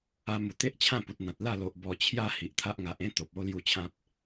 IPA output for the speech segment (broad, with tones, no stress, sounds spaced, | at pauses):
a˧ m u˨˩ t̪ e˦ ʔ t͡ɕʰ ã˥˧ p u˨ t̚ n̪ ã˨ t̚ l a˥˧ l o˨ ʔ b ɔ˨˩ t͡ɕʰ j a˧ h i˨ ʔ t̪ʰ a˦ ʔ ŋ a˨ ʔ ẽ˦ t̪ o˨ p̚ o˦ l j u˥˧ t͡ɕʰ ã˦ p̚